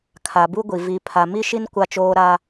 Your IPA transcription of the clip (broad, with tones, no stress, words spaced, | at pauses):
kʰa˨bu˦ɡʷi˨ vi˨ pʰa˨ mi˦ʃi˦n kʷa˦t͡ʃoː˦ ɾa˦